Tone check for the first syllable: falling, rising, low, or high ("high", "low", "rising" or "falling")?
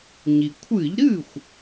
low